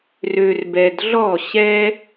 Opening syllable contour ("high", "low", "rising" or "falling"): low